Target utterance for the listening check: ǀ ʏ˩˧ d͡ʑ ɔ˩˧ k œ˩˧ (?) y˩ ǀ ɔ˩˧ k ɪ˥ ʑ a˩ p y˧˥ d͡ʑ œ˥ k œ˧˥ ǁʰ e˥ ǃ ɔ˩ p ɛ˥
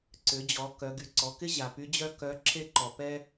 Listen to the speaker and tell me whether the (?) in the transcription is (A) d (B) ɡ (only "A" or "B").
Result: B